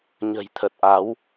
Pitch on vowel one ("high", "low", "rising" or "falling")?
low